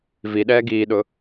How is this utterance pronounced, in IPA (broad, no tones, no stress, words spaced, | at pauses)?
viɗɛː ɡiːɗʊ